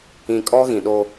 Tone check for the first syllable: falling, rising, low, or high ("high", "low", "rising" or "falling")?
low